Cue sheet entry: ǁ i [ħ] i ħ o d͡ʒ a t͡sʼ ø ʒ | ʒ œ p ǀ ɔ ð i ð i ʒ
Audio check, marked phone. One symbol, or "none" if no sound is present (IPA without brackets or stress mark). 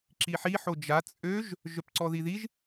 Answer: ħ